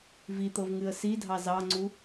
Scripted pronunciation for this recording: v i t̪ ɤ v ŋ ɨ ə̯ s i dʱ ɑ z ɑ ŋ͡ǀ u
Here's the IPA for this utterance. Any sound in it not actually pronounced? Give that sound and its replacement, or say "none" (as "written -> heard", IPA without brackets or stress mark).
none